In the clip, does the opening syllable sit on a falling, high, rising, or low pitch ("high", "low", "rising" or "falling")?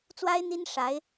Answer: high